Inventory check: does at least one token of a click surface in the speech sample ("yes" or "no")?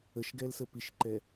yes